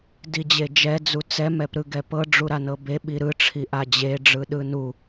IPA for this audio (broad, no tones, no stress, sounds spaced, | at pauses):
d i d͡ʑ e d͡ʒ ɛ d͡z u t͡s ɛ m ɛ p ɾ ɯ ɡ ɛ p ɤ ɖ͡ʐ u ɾ a n ɤ b e ɓ i ɾ ɯ ʈ͡ʂʰ i ʔ a d͡ʑ e ɖ͡ʐ ɯ ɗ ɯ n u